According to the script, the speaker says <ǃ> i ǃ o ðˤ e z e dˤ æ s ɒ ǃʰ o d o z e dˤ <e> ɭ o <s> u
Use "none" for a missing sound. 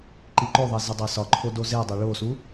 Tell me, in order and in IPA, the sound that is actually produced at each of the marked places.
ǃ, e, s

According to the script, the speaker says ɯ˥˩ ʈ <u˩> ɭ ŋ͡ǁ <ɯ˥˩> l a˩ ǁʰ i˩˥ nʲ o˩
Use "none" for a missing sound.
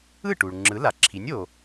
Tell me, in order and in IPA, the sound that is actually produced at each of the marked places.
u˩, ɯ˩˥

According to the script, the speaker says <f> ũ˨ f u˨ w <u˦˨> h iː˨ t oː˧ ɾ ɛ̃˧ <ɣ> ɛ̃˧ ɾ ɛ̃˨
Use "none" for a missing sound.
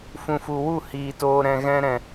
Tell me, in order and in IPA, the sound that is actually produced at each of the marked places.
f, u˦˨, ɣ

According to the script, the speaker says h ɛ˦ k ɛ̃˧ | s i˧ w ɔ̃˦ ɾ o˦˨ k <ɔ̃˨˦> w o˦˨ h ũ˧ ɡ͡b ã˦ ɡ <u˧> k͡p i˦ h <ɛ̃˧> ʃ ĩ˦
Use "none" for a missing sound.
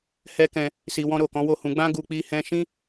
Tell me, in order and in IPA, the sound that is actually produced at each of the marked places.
ɔ̃˨˦, u˧, ɛ̃˧

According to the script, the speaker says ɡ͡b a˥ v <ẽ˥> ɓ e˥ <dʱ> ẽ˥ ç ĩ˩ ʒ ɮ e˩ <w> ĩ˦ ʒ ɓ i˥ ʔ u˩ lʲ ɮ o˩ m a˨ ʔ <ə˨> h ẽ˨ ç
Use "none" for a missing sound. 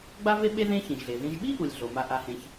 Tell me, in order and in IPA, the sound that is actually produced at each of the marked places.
e˥, ð, ð, a˨

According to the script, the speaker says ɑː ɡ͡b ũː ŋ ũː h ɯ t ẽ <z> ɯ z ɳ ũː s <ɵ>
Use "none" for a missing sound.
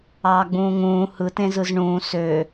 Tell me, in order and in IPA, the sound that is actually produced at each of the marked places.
z, ø

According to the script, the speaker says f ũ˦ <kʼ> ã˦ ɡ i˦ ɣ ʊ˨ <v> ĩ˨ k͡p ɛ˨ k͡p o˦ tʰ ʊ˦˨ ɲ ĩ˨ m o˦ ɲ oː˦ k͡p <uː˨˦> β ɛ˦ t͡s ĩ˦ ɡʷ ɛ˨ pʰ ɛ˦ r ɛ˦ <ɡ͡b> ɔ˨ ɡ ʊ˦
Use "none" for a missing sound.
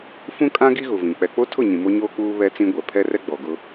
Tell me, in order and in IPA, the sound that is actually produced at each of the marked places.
kʼ, v, uː˦, ɡ͡b

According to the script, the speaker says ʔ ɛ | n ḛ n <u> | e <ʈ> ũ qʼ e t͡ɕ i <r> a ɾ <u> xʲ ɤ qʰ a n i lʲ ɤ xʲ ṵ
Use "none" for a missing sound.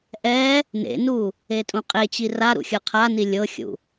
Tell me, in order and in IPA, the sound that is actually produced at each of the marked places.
u, tʼ, r, ṵ

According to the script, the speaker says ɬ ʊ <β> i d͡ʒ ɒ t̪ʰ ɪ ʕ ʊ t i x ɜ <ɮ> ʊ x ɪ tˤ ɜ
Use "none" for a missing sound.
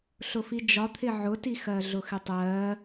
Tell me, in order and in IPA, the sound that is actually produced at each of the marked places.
f, ɮ

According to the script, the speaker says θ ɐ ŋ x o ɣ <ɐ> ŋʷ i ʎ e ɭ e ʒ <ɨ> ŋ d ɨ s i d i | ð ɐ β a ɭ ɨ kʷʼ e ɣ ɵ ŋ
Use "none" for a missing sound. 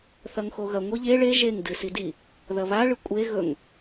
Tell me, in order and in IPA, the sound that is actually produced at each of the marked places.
ɐ, e

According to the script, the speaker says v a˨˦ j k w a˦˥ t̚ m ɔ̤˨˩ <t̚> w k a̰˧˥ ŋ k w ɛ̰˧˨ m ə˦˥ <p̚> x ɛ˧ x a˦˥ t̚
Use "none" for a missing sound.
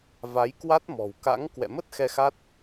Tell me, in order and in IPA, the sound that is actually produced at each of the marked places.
none, t̚

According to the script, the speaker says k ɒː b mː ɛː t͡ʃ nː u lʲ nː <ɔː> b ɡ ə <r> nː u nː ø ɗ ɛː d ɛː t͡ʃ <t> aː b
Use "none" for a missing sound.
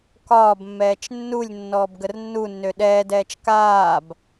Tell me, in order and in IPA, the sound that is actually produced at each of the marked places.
ɔː, r, k

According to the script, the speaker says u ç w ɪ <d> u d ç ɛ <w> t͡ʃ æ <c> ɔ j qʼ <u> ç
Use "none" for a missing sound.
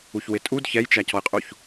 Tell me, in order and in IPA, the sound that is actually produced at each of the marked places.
tʼ, j, c, u

